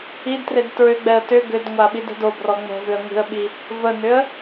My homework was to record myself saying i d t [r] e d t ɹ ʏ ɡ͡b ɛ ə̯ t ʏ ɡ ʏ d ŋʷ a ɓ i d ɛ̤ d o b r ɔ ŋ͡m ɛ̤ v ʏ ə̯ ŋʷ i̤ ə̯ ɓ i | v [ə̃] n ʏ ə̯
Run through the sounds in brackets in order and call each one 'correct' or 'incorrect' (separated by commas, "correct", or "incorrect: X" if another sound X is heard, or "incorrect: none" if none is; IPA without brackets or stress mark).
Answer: correct, incorrect: ə